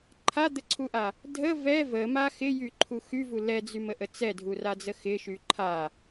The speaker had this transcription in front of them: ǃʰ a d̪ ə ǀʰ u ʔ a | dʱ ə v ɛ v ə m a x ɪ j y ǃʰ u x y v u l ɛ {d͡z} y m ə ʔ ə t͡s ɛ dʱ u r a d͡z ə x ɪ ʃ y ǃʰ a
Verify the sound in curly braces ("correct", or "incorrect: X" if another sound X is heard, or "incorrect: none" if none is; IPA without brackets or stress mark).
correct